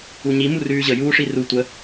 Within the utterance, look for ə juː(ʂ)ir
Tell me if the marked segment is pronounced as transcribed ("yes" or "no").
yes